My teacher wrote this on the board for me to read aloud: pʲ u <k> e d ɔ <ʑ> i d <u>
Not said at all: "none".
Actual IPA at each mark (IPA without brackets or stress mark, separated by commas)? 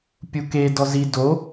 k, z, o